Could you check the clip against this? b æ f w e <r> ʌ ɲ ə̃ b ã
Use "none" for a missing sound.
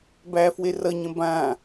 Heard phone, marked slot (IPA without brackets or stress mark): r